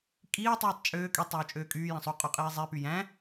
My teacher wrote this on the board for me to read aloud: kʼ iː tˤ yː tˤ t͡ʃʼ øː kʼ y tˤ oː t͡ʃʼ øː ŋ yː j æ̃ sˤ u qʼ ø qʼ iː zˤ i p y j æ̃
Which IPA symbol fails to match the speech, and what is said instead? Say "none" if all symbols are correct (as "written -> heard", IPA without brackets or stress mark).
ŋ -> kʼ